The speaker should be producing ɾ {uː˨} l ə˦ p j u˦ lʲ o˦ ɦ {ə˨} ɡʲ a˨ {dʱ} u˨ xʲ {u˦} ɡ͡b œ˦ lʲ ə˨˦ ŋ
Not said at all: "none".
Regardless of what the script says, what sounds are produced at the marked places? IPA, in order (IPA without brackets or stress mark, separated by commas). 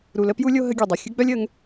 u˨, ə˦, dˤ, ɯ˦